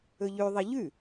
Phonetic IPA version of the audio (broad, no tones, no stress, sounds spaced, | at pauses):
ɵ ʎ ʉ ðˤ i ʎ ʉ